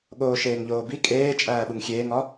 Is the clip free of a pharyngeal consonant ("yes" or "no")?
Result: yes